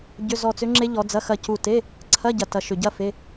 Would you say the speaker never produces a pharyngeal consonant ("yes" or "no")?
yes